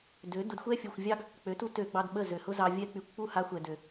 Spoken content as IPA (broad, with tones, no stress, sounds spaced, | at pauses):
d ø˨˦ d ʊ˧ d xʷ ɛ˦ fʲ u˨ xʷ vʲ ɑ˦ ɡ | k͡p ø˨˦ t u˦ t ø˧ ɡ͡b ɑ˧ d ɓ ə˦˨ z ø˨ h ʊ˦ z ɑ˧ vʲ ɛ˧ k͡p y˨ kʷ k͡p u˦˨ h a˧ xʷ ɛ˨ d ø˨